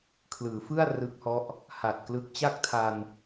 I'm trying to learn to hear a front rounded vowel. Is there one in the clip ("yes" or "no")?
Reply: no